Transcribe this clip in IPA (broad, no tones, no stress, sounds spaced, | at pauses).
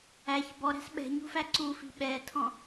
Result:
æ ç b ɔ ɾ æ̤ s ɓ ɛ̤ ɲ ṳ f æ ǀ u f i̤ ɓ ɛ tʰ ɔ̃